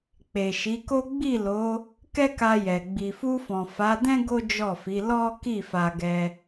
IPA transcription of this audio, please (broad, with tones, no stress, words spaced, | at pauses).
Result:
k͡pe˨ʃi˨˦ko˦ ɡ͡bi˦˨lo˨˦ | kɛ˦ka˧jɛ˨ ɡ͡bi˨fu˧fɔ̃˨ fa˨˦dɛ̃˦ ɡo˦d͡ʒɔ˦˨fi˨˦ lɔ˦ ki˦˨fa˧ɡɛ˧